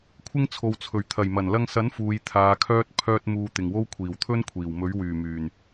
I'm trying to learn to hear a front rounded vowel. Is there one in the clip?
yes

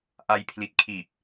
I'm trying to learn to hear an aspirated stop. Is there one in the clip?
yes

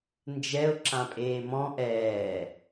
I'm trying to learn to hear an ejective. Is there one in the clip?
yes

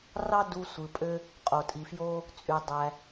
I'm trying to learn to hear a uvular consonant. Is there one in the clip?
yes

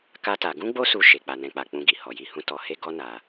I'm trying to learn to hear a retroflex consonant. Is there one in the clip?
no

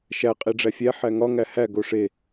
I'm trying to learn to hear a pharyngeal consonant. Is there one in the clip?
yes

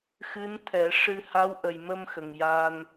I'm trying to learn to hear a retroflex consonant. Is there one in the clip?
yes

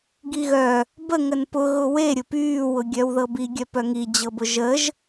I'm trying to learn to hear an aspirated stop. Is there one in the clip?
no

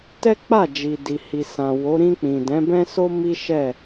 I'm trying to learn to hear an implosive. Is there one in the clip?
no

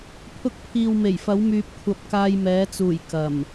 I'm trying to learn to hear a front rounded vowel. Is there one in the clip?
yes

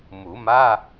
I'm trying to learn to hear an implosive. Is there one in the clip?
no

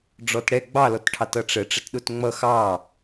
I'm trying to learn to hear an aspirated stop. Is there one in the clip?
yes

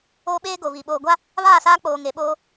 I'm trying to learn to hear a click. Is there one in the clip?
no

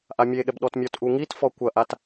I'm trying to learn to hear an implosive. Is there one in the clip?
yes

